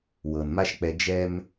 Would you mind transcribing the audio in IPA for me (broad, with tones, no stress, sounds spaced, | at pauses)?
w ɤ˨ n m a˦ ʃ k͡p ɛ˧ d͡ʒ ɛ˧ m